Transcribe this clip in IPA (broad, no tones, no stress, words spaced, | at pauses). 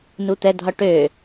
nut̪ɛ dʱɒʈø